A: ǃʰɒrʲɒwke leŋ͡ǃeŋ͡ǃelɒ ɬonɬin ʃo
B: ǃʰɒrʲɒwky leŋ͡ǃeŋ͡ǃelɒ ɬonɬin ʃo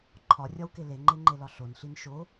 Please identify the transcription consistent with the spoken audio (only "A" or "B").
A